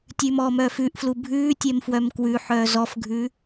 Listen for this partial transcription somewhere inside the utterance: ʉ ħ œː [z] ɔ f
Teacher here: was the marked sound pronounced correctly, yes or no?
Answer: yes